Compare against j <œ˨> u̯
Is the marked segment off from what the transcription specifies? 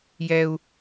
yes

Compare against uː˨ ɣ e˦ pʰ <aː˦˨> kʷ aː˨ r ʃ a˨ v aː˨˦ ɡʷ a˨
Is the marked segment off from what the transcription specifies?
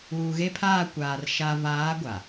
no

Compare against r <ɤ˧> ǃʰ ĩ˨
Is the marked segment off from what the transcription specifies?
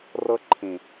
no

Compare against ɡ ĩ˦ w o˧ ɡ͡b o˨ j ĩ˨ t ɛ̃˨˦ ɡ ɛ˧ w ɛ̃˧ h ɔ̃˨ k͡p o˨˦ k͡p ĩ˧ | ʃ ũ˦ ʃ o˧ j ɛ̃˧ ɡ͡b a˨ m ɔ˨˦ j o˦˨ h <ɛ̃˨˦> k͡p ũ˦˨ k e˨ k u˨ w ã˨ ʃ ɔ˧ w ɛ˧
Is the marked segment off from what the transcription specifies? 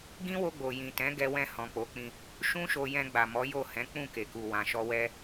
no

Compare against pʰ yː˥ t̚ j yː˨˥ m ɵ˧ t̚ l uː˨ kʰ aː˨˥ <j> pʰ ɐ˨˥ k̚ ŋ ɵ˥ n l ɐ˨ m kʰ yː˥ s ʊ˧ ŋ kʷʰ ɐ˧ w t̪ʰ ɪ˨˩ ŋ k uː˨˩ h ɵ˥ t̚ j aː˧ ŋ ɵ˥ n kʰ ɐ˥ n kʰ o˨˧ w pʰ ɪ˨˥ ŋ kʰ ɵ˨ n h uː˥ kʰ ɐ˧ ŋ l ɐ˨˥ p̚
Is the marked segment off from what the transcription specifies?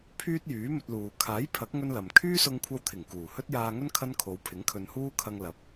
no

